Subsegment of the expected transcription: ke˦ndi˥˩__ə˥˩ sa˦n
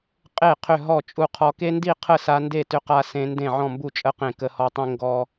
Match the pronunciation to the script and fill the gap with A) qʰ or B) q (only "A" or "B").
A